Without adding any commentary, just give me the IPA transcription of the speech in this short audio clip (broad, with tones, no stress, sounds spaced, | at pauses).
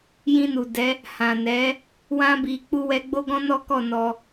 j ĩ˧ n u˨ d ɛ˨˦ | h ã˨ n ɛ˨˦ | w ã˧ b i˨ k͡p u˧ w ɛ˧ ɡ͡b o˦ ɡ ɔ̃˦ n ɔ˦ k ɔ˦˨ n ɔ˧